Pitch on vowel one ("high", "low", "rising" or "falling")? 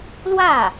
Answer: falling